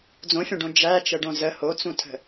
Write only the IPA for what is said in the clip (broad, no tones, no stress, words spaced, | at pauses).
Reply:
d͡zõfʲõɖõ d͡ʒæt͡ʃəɖõ zə hot͡sũtʰə̤